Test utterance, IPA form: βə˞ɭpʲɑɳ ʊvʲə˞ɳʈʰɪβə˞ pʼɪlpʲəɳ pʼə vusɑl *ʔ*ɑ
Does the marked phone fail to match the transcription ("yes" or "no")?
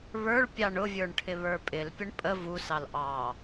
no